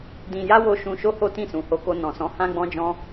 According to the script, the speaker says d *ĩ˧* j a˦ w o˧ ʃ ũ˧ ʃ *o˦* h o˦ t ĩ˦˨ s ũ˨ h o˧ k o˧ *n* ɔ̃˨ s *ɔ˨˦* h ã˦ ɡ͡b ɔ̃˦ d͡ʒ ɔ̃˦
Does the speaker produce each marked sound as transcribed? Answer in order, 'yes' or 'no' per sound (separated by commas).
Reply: yes, yes, yes, no